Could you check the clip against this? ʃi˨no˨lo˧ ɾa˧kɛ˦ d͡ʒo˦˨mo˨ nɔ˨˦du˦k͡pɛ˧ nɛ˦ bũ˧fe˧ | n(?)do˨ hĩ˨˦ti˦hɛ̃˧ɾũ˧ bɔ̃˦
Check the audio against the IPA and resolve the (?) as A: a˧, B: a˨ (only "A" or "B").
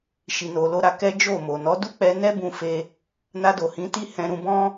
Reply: A